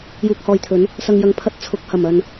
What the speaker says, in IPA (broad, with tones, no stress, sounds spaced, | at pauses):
j uː˧ k̚ h ɔː˧ j t̪ʰ ɵ˨˥ n | s ɐ˨ ŋ j ɐ˨˥ ŋ pʰ ɐ˧ t̚ t͡sʰ ʊ˨˥ k̚ h ɐ˨˩ m ɐ˨ n